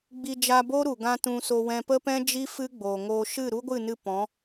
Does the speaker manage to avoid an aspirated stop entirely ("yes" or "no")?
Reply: yes